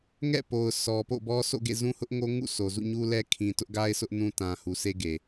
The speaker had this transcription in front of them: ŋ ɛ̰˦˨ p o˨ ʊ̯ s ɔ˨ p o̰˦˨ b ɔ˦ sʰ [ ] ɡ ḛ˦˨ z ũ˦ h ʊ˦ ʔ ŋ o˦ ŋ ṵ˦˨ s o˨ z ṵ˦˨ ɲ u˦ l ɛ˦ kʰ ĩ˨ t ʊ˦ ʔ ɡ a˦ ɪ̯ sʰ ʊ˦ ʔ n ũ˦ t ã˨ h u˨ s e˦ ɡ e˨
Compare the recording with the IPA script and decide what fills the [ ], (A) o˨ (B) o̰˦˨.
B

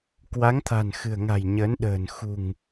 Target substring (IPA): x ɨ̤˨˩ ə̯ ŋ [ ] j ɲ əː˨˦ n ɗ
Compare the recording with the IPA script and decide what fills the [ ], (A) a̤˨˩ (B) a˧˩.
A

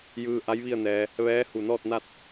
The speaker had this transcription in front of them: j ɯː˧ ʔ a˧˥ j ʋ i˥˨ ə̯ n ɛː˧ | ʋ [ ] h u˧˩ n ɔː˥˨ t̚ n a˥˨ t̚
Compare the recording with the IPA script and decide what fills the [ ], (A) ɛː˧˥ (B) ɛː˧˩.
A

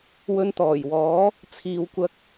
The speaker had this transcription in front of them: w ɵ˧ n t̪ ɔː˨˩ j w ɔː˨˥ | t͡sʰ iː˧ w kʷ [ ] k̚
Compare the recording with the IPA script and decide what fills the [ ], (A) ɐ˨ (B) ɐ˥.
B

